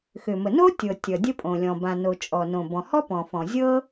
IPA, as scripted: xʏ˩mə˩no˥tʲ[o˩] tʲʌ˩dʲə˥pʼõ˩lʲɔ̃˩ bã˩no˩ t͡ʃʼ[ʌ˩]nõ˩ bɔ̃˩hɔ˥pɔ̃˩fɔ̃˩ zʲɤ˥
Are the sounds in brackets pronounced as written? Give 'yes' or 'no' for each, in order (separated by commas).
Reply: no, no